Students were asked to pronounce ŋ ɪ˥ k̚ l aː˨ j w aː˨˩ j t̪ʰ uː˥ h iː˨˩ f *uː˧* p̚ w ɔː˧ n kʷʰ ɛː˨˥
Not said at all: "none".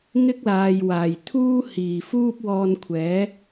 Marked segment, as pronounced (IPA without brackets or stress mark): uː˥